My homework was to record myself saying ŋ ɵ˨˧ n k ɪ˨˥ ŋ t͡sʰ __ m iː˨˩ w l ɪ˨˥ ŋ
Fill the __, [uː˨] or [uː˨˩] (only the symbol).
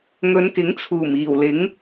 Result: uː˨˩